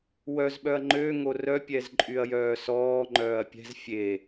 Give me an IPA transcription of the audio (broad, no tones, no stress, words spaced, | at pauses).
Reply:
wœz ɓœɐ̯ŋ͡ǃøŋo rœpʲɛzǃʼyɐ̯ jœːsɔːŋ͡ǃœːɐ̯ pʲɛ̤z fʲe